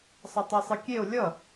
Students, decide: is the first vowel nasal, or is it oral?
oral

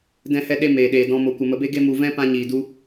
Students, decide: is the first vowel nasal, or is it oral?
nasal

